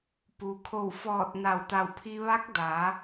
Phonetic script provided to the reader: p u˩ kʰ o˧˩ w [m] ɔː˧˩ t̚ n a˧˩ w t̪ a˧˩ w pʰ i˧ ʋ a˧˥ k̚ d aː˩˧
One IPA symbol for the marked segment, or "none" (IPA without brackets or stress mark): f